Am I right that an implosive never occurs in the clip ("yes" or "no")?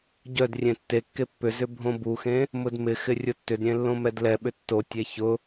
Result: no